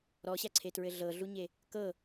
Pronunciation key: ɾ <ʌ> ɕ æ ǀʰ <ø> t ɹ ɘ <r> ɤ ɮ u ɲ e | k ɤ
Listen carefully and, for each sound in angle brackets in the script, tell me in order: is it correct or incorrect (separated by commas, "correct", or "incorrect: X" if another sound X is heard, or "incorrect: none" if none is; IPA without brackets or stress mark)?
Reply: incorrect: ɔ, incorrect: e, incorrect: ɮ